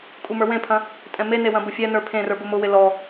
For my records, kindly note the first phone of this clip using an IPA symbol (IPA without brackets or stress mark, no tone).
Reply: kʼ